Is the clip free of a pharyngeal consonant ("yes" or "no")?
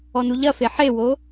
no